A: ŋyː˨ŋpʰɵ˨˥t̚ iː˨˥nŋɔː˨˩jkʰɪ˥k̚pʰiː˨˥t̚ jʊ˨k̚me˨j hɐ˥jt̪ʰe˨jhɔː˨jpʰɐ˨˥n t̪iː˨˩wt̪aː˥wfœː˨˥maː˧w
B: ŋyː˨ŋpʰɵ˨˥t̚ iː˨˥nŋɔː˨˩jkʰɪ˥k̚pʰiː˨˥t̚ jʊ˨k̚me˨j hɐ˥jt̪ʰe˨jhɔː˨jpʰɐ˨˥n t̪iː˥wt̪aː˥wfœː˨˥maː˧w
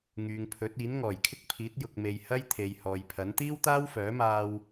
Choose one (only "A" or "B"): B